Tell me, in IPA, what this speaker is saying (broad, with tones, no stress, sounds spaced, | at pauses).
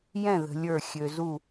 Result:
j ɛ̃˥˨ ð ə̤˧ lʲ ə˞˥˨ xʲ ø˧ z u˥˨